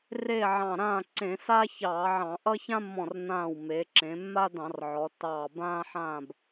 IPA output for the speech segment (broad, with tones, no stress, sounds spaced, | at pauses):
r e˥˨ ʕ ɑ̃˧˩ ɾ ãː˥˨ ǀ ẽ˧˩˧ s a˥ ç ɑː˧˩˧ ʕ ɑ̃˧˩˧ ʔ ʌ˥ ç ã˥ mː ɔ̃˧˩ r n ãː˧˩ w m e˩˧ ǁ ẽ˩˧ mː a˥ d ɑ̃˧˩˧ r ʕ ɔ˩˧ tː ɑː˧˩ b ãː˥ ħ ãː˥˨ b